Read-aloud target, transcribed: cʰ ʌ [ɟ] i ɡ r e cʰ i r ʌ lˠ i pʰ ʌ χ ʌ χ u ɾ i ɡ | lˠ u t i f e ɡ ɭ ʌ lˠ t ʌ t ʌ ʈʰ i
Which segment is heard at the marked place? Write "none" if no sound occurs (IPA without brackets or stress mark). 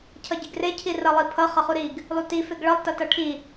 ɟ